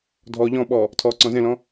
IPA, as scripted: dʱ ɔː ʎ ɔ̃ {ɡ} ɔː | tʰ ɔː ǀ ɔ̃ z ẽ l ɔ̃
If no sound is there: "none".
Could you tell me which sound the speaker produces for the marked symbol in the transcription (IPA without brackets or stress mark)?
ɓ